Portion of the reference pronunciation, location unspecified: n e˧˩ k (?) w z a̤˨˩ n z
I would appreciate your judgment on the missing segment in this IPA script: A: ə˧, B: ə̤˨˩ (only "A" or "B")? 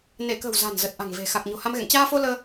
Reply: B